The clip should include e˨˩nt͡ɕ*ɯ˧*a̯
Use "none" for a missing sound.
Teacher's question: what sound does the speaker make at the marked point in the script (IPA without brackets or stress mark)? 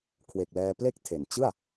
ɯ˥˩